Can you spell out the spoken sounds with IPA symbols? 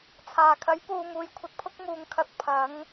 t͡sʰ aː˨˩ kʰ ɐ˨˥ j p uː˨ m uː˨˧ j kʷʰ ɐ˧ t̚ pʰ ʊ˥ k̚ m uː˨ ŋ kʰ ɐ˨˥ t̚ pʰ ɐ˨˥ ŋ

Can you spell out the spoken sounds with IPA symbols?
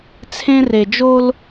t͡sʰ ẽ˦ r e˨ d͡ʒ o˦ l

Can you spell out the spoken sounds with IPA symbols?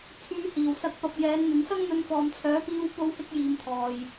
t͡sʰ yː˧ h iː˨ w s ɐ˧ k̚ p ɐ˨ p̚ j ɛː˨˧ n n̪ ɪ˨˧ ŋ s ɐ˥ ŋ n̪ ɵ˧ n f ɔː˨ m t͡sʰ œː˨˥ p iː˧ w p o˧ w h ɪ˧ k̚ j iː˨ m t̪ʰ ɔː˨ j

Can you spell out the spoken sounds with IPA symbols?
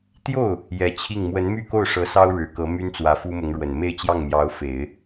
t̪ j o˥˩ ʊ̯ | j ɛ˧˥ t͡ɕʰ i˥˩ ŋ m w ə˧˥ n m y˥˧ k o˥˩ ʊ̯ ʂ ɤ˧˥ s ɑ˥ ʊ̯ ɻ ɻ̩˨˩ k ɤ˧˥ m y˥ n t͡s w ä˧˥ f u˥ m ʊ˧˥ ŋ ɻ w ə˨˩ n m e˥˧ ɪ̯ t͡ɕ j ɑ˥˩ ŋ m j ɑ˧˥ ʊ̯ f e˨˩˦ ɪ̯

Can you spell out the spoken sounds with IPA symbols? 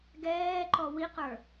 ɡ ɛː ǃ ɔ w i q ə˞

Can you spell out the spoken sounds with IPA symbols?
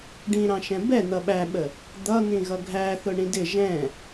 ɖ ĩ ɾ ɑ̃ ʃ ɛ̃ b ɛ n̪ ʌ ɓ æ ɓ ə | d̪ ʌ n̪ ĩ ɣ ʌ ɡʱ æ θ ʊ ɳ ĩ d ɪ ʒ ɛ̃

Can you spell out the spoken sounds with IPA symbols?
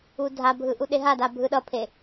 u dʱ a bʱ ɯ ʔ u ɗ e ɦ a d a bʱ ɯ ɗ ʌ pʰ e

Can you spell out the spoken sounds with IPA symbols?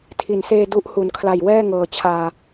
tʰ i˩˦ n s eː˧ d u˦˥ ʔ h u˩˦ n kʰ l a˨˩ j w ɛː˥˩ ŋ ɤː˨˩ t͡ɕʰ aː˧

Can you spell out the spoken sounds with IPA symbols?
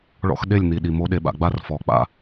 ɭ ɔ̰˦ x ɗ e˦˨ lʲ n̪ i˨ ɗ i˨ m o˨˦ ɗ e˨ ɓ a̰˨ ɡ͡b a˦ r f ɔ˨ k͡p a̰˦˨

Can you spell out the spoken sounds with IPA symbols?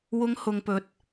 w ʊ˧ ŋ h ʊ˧ ŋ p ɵ˧ t̚

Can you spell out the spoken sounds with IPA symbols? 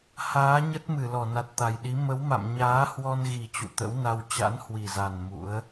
h aː˨˦ ɲ ə˦˥ t̚ m ɨ˧˩ l ɔ˧˩ n a˨˩ t̚ t̪ a˨˩ j ɗ i˨˦ m ə˨˦ w m a̰˧˨ m ɲ aː˨˦ h w ɔ˧ n ɣ i˨˩ t͡ɕ ṵ˧˨ t̪ ə̰˧˥ w n a˧ w t͡ɕ a̰˧˥ n h w i˨˩ z a˨˩ n m ṵ˧˥ ə̯

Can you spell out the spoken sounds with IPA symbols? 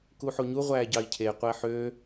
k u ħ o ɲ u ʁʷ æː ɟ ɑ i̯ cʰ e qʷ æ ħ ø

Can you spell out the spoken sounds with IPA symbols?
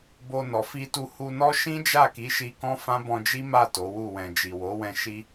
b o˧ n ɔ˨ f i˧ t u˧ h u˧ n ɔ˦ ʃ ĩ˦ d͡ʒ a˦˨ k i˨˦ ʃ i˧ k ɔ̃˦ f ã˦ b ɔ̃˧ d͡ʒ i˦ m a˦˨ t o˨˦ w u˦˨ w ɛ̃˨ d͡ʒ i˨ w o˨˦ w ɛ̃˧ ʃ i˦

